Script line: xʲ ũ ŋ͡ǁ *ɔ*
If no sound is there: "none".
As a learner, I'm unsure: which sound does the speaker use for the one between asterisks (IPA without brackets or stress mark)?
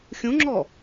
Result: ɔ